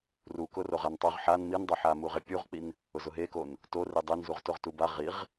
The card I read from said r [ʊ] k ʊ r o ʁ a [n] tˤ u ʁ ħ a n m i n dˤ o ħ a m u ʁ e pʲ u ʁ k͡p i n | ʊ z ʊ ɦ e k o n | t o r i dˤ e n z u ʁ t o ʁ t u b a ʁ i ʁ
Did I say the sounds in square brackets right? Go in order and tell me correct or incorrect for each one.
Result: incorrect, correct

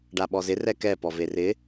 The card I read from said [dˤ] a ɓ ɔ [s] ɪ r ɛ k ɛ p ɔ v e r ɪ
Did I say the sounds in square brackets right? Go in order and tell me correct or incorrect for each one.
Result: incorrect, incorrect

